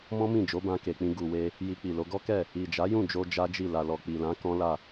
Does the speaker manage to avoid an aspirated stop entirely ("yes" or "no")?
yes